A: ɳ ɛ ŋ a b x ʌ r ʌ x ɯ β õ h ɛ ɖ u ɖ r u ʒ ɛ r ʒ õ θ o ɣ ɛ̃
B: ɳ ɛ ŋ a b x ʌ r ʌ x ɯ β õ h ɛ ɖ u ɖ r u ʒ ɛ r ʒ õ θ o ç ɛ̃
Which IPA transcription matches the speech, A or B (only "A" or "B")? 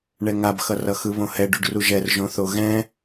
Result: A